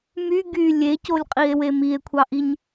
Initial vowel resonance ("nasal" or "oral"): oral